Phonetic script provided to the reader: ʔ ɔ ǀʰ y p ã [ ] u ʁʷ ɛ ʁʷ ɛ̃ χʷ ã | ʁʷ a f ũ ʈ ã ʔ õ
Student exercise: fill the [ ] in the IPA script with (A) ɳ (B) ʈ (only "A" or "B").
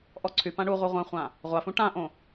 A